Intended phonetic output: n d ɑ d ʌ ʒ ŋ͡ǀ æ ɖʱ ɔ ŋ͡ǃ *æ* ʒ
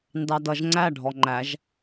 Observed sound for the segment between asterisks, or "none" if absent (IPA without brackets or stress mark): æ